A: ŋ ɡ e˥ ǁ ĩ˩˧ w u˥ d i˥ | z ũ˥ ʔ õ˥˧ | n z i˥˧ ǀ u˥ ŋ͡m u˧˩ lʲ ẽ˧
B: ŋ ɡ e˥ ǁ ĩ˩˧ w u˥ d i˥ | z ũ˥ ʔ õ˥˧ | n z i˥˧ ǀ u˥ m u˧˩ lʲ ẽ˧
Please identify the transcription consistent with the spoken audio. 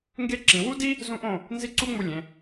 A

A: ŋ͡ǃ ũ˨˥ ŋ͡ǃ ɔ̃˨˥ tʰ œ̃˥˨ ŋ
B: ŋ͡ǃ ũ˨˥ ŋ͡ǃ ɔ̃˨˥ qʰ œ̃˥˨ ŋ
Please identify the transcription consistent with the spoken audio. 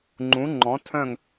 A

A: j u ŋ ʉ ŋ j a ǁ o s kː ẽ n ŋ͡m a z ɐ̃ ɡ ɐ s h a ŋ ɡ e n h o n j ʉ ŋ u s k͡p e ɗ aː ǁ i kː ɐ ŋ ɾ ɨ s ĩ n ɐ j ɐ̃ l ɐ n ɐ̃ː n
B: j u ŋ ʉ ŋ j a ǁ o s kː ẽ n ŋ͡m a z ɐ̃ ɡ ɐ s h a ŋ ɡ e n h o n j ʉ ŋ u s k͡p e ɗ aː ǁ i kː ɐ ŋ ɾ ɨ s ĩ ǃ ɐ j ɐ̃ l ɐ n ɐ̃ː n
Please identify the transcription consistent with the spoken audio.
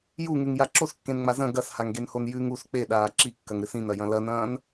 A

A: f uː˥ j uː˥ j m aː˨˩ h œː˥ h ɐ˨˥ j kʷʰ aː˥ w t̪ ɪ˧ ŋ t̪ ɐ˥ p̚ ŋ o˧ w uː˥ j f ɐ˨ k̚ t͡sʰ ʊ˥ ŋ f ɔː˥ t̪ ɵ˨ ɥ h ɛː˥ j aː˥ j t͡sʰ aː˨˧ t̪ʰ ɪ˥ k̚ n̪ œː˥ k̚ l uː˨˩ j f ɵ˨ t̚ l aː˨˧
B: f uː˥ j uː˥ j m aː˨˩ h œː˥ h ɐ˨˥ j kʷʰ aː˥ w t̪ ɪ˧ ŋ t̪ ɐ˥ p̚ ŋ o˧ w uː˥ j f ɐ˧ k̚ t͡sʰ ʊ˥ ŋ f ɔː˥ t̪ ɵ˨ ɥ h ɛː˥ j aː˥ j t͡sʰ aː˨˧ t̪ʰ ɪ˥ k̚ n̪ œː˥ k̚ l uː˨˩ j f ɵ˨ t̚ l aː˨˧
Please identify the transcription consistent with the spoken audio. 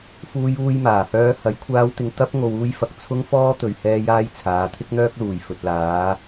B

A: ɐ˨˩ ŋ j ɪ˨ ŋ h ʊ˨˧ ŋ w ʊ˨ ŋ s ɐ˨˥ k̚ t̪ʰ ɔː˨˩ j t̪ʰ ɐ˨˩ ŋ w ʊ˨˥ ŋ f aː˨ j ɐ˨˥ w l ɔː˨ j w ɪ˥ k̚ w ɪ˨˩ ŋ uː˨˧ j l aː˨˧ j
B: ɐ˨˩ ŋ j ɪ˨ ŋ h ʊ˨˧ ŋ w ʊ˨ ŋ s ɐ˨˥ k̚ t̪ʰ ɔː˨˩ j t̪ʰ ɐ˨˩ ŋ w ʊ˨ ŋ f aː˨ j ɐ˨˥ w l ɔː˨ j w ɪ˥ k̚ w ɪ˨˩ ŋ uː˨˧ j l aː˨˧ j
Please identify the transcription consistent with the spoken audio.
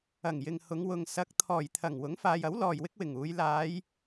A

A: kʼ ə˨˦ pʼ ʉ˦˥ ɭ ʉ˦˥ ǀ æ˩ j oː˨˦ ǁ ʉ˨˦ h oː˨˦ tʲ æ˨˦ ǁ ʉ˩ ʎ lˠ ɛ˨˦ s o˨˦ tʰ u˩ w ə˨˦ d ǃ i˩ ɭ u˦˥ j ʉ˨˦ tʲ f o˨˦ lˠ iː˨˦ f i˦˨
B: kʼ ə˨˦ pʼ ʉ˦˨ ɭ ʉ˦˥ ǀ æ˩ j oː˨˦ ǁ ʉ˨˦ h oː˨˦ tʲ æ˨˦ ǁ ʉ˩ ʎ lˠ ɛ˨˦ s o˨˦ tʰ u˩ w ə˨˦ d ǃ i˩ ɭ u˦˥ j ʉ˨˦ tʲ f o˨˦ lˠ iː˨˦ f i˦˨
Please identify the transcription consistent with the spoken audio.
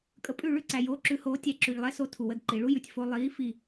B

